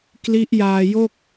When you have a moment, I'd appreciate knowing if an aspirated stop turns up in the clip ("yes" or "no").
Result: no